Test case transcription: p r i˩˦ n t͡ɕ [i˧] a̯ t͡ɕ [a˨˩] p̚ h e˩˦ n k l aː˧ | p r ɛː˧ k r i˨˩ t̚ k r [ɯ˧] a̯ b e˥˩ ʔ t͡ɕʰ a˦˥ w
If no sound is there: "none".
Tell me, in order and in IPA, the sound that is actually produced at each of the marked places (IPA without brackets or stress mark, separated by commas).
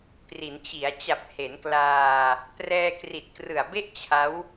i˩˦, a˨˩, ɯ˨˩